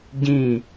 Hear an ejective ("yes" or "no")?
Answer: no